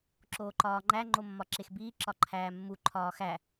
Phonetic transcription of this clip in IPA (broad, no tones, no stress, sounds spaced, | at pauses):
ǁ oː ǃ ɒː ŋ͡ǃ æ ŋ͡ǃ o mː ɒ ǁ e x b iː ǁ ɒ ǃʰ æː mː u ǃʰ ɒː x æ